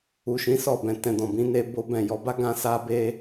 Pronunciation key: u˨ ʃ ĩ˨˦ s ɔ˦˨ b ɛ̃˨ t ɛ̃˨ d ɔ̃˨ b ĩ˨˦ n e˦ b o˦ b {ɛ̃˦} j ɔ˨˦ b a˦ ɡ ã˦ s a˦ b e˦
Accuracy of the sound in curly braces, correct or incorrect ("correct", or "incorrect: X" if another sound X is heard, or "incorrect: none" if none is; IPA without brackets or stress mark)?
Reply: incorrect: ɛ̃˦˨